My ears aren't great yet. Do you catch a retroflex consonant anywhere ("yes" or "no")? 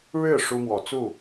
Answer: yes